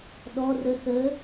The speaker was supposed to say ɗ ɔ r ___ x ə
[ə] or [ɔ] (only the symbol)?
ə